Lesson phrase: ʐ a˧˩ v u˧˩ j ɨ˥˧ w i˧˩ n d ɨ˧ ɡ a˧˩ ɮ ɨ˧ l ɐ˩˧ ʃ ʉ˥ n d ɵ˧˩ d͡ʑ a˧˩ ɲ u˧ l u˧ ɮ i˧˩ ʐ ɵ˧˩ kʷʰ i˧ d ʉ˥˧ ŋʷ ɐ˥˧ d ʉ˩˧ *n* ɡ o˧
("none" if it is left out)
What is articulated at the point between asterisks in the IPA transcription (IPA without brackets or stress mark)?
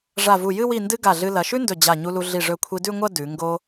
ŋ